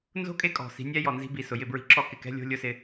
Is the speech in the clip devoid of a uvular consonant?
yes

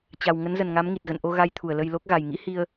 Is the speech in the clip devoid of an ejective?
yes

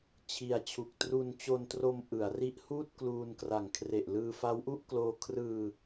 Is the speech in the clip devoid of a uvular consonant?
yes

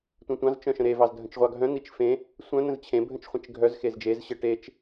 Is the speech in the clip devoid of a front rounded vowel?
no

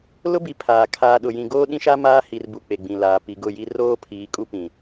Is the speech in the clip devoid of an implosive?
no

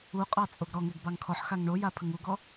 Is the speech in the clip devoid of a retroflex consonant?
no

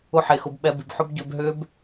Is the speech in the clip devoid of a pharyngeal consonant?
no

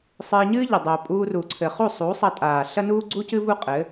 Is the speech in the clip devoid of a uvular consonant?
no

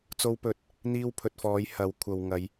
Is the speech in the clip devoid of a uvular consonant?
yes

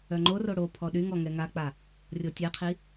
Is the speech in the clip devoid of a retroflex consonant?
no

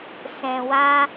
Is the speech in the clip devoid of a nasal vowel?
no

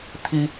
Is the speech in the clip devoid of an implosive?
yes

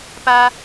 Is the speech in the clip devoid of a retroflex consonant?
yes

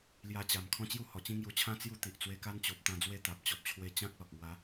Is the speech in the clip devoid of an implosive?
yes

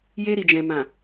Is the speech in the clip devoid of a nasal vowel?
no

